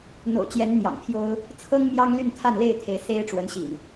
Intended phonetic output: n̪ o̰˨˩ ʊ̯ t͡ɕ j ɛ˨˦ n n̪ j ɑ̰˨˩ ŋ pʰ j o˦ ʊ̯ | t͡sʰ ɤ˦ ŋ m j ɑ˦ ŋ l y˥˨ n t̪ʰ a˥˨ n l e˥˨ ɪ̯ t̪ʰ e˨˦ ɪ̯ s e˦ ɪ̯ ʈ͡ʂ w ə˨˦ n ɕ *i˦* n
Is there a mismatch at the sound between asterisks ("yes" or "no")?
yes